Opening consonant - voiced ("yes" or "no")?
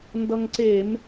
yes